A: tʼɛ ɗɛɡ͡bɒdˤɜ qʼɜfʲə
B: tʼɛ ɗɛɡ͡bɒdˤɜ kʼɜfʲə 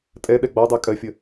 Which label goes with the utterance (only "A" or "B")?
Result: B